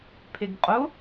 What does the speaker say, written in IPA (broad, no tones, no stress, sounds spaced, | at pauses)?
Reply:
pʰ e ɡ qʼ ʊ